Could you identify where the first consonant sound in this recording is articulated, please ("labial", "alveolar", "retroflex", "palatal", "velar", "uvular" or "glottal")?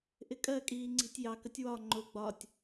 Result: glottal